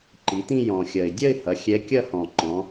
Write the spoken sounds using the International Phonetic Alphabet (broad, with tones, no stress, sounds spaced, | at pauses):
ǃ i˩˧ t̪ ĩ˥˧ j ɔ̃˨˩ xʲ ɐ˨˩ ɪ̯ dʲ ɐ˥˧ ɪ̯ h ɐ˩˧ xʲ ɛ˧˥ kʲ ɐ˥˧ h ɔ̃˨˩ ǃ ɔ̃˩˧